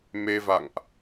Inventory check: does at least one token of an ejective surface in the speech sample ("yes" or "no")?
no